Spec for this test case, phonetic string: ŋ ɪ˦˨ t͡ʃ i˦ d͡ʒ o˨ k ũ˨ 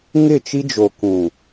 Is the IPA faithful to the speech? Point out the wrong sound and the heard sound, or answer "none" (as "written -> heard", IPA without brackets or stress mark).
none